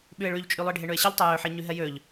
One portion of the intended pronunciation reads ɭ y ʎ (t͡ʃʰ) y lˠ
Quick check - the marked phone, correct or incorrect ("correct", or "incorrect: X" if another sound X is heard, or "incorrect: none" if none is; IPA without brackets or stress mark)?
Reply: incorrect: t͡ʃʼ